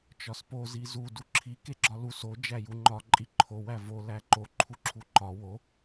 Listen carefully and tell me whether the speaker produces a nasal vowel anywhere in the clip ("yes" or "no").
no